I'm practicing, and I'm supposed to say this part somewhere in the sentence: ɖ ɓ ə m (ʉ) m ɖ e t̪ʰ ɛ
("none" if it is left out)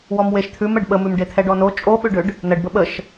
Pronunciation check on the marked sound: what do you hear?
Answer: ʉ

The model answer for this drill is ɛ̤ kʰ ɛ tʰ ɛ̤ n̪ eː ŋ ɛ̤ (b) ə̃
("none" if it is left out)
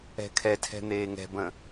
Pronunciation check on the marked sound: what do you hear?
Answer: b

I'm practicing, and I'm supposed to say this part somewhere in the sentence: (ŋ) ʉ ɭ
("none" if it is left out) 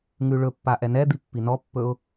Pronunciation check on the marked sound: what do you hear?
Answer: ŋ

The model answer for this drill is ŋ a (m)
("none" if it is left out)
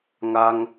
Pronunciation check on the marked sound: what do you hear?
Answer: ŋ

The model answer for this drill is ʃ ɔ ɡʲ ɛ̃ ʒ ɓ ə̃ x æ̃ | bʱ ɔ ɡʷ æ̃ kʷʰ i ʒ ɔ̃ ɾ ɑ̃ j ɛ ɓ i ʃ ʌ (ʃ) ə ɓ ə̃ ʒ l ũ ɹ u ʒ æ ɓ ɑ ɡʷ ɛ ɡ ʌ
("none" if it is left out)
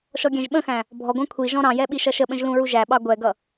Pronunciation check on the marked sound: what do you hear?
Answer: ʃ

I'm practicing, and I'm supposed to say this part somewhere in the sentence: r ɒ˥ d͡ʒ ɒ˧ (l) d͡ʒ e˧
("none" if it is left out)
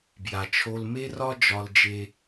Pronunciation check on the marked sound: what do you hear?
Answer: l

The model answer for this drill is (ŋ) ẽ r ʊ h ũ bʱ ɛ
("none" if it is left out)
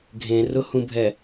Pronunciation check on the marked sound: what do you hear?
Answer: ɡʱ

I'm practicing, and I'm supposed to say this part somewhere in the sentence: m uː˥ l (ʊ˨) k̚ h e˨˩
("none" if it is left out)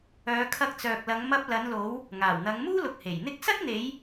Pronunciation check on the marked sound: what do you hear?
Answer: ʊ˨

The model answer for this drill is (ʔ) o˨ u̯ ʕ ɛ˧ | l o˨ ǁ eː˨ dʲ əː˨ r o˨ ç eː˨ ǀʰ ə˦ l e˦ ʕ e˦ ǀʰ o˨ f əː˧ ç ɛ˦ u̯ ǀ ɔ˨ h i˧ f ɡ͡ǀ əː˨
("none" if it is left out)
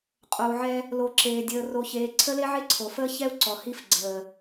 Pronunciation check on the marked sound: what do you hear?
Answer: qʼ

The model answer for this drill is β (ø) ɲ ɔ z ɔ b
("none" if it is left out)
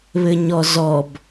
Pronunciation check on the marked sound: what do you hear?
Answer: ɘ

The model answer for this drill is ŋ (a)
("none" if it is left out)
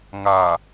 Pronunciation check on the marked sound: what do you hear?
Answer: a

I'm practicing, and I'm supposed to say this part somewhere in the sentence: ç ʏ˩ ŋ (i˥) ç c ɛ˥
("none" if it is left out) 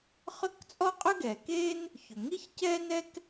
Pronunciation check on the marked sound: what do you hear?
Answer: i˥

